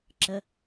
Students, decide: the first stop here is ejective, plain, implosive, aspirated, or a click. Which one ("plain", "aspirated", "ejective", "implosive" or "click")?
click